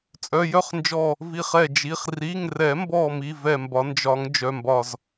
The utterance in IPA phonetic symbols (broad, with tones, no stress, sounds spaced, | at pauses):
t͡sʼ œ˩˧˩ j œ˥˨ χ n d͡ʒ ɔ˧˩ | v i˧˩ χ ɛ˧˩ d͡ʒ i˩˧˩ χ r i˩˧˩ ŋ r ɛ˨˩˦ m b ɔ˧˩ m i˩˧˩ v ɛ˧˩ m b ɒ˨˩˦ n d͡ʒ ɒ˨˩˦ ŋ d͡ʒ œ˩˧˩ m b ɒ˧˩ z